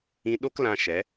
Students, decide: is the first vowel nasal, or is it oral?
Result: nasal